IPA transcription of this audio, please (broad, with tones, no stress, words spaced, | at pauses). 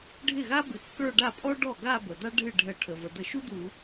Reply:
ɖʱɪ˥˩ɣa˥ bɪ˧˩˧kːə˞˥˧ɖa˥˩ pʼɔ˥ɖɔ˥˩ɡa˥˧ bə˩d̪a˥ ɖʱɨ˥˩ɖʱə˧˩˧ʈʰə˩və˩ d̪ə˧˩˧ʃu˥ d̪u˧˩˧